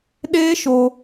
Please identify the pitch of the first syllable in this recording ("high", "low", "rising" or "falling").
high